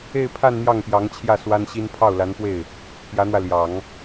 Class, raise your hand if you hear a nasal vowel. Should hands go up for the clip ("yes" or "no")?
no